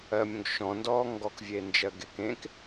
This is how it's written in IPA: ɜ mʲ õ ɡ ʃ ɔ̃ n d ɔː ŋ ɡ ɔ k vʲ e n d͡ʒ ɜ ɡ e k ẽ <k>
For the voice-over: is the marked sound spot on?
yes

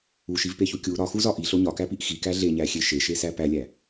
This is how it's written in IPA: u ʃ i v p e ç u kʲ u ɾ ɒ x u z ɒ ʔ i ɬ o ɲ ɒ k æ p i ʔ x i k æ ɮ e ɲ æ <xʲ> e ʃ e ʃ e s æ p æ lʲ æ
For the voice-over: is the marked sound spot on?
yes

